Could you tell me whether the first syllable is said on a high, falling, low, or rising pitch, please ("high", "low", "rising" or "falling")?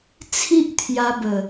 high